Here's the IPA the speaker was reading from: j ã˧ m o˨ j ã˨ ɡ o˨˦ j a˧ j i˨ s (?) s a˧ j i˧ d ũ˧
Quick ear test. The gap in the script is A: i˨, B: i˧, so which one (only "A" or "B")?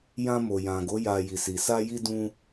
A